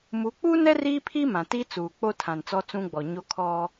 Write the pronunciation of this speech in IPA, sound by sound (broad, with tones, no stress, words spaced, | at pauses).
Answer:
mu˨˦k͡pu˦nɛ˦ ri˦pʰi˦ mã˨ti˦ t͡suː˨k͡po˦ tʰã˨nt͡sɔ˦t͡sũ˦ɡ͡bɔ˨ ɲo˦kʰɔ˦